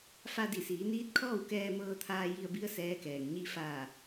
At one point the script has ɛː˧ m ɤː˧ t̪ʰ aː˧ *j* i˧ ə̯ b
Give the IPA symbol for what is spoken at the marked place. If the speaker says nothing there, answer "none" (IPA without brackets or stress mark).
j